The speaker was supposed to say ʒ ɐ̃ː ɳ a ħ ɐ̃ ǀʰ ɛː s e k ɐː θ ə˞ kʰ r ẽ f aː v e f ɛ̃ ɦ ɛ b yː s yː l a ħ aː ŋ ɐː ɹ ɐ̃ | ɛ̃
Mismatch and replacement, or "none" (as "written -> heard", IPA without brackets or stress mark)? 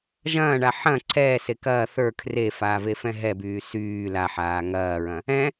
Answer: ẽ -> e